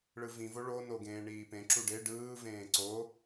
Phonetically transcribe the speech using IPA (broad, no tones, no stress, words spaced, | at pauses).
ɭɯvĩ voɭo noɡẽːɳiːpẽ ǁuɖe ɖɯː vẽːǀo